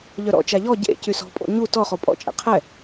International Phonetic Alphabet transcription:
ʎ œ ɾ ɔ̰ t͡ʃ a ʎ ɔ ɟ ḛ c y s ɔ̤ pʼ o̰ ɲ u t ɔ χ o pʼ ɔ̰ t͡ʃʼ ɛ̰ qʰ ɛ

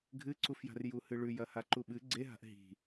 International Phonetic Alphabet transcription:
ɡʱ ɨ ǀ u f j a̤ r j u h ɨ ɭ ʉ j ɐ h a ǃ u ɓ ɨ ɡ͡ǀ e ɦ a̤ ʔ ɦ i̤

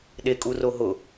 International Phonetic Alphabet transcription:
ɗ e kʼ u r o ɦ ʊ

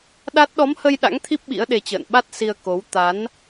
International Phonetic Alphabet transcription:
ɗ a˦˥ t̚ ɗ ɔ˨˦ m h ə˧ j ɗ a̰˧˥ ŋ t̪ʰ i˦˥ p̚ ɓ ḭ˧˥ ə̯ ɗ e˧ t͡ɕ ə̰ː˧˨ n ɓ a˦˥ t̚ s i˧ ə̯ k o˨˦ w t̪ a˨˦ n

